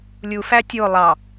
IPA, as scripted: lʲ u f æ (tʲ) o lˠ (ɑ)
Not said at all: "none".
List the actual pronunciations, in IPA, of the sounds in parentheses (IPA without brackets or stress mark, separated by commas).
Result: tʲ, ɑ